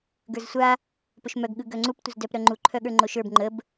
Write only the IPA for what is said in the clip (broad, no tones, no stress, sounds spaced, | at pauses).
ɡ ə˞ z sʷ a | p ɵ ʃ m œ ɡ ɠ ɯ ɡ œ ŋ͡ǀ u p tʷ ə z d œ p ɾ œ ŋ͡ǃ u ǃʰ œ ɠ ə˞ ŋ͡ǃ o ʃ ə˞ b ŋ͡ǃ ə b